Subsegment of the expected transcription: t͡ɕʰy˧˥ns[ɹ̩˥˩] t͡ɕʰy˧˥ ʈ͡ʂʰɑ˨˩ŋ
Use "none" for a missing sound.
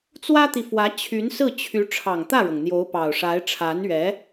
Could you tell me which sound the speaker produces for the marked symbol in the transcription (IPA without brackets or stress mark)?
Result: ɹ̩˥˩